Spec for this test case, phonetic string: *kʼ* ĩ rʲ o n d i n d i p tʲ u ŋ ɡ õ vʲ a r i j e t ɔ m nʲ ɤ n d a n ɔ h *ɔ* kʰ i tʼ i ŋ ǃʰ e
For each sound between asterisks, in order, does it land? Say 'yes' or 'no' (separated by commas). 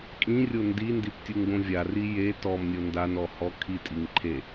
yes, yes